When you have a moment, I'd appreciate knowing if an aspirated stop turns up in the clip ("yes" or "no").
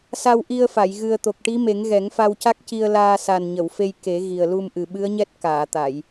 no